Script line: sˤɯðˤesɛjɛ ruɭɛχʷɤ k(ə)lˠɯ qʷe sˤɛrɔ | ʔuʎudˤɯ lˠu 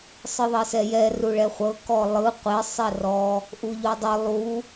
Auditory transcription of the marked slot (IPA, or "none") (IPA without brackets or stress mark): ɔ